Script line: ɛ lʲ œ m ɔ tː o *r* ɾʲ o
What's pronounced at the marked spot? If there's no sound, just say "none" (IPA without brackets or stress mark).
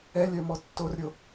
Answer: r